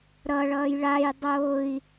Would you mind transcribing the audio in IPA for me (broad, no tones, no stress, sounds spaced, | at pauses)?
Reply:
ɾ ʌ ɭ ʌː j ɭ a j dˤ oː i̯